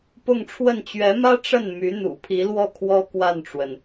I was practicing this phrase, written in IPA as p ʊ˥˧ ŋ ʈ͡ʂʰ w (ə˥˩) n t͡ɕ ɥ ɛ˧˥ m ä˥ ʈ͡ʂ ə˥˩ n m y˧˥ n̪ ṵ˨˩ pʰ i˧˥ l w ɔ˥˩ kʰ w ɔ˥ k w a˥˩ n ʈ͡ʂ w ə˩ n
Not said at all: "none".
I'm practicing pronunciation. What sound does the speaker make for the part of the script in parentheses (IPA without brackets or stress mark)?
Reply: ə˥˩